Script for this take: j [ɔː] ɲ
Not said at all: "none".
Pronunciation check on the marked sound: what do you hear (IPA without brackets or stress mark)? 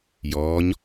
ɔː